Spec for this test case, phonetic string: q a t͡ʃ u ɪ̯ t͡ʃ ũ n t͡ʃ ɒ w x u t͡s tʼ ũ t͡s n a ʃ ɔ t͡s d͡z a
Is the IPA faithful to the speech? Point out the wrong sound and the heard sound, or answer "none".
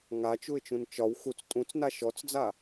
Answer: q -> ŋ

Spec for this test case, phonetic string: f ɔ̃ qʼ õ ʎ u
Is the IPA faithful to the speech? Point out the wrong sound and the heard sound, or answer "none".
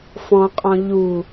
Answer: õ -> ɔ̃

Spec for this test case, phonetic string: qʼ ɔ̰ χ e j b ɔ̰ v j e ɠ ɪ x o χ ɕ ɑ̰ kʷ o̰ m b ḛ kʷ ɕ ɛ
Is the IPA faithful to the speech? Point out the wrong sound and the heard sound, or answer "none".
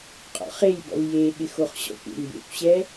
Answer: ɑ̰ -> ɔ̰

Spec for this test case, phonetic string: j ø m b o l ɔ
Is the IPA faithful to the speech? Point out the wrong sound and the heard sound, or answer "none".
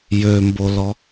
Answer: none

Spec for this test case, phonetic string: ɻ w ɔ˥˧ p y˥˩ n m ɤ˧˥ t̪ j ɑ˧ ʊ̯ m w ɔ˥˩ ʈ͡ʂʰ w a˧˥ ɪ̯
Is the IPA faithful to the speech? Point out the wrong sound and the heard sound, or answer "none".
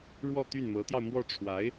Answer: p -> t̪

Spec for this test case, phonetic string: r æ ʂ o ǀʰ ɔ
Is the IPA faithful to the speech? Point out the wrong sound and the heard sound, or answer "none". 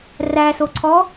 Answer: ʂ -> s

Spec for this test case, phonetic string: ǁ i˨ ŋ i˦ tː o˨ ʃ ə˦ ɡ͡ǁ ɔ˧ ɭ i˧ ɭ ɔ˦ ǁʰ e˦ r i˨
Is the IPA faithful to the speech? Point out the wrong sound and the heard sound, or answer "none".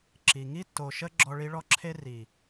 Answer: none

